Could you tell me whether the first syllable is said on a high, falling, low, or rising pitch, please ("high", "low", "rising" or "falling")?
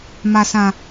low